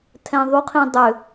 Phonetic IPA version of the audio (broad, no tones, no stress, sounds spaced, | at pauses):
tʰ ɛ̃ ðˤ u qʰ ĩ dˤ ʏ